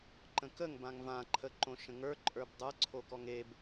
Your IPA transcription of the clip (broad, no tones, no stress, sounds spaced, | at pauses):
ǃ ə̃ k ə ŋ b ã ŋ v ã ǃʰ ə ǃ õ ʃ ə̃ ŋ ə˞ ǃʼ ə˞ b dˤ ə˞ ǀʰ o k ɔ ŋ e b